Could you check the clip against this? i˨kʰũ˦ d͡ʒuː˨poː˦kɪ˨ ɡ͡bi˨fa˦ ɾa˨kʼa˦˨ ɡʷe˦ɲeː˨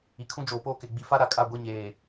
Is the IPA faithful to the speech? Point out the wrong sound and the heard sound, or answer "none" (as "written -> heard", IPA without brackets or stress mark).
uː˨ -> oː˨